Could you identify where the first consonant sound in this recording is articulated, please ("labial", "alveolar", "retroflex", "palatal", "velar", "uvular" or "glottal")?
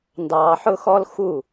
alveolar